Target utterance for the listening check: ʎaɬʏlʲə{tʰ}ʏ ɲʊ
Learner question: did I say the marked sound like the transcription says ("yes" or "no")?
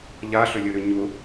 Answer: no